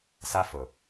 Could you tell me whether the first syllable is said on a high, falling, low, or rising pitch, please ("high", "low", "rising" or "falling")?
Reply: high